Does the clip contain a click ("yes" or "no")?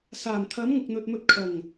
no